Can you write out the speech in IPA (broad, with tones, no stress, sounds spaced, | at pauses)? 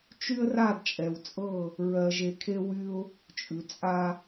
t͡ʃ y˦ ə̯ r a˦˨ d t͡ʃʼ ɛ˨ w t͡sʼ ɤ˦˨ | ɹ ɜ˨ ʒ e˨ kʰ e˦ w y˦ ʊ̯ | t͡ʃʼ ʉ˨ t͡sʼ a˦